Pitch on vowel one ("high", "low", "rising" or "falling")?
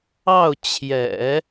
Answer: falling